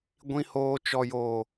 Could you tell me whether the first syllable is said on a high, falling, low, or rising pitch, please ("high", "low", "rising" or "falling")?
low